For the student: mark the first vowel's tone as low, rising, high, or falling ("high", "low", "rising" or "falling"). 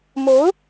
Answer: rising